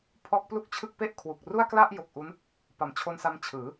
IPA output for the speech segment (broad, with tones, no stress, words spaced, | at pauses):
pʰɔː˦˥k̚plu˥˩k̚t͡ɕʰɯ˥˩k̚ pe˦˥ʔ kʰwu˨˩k̚ ru˥˩a̯kla˥˩ʔ jo˨˩k̚ʔu˦˥n | pa˨˩mt͡ɕʰo˧nsa˧m t͡ɕʰɯː˩˦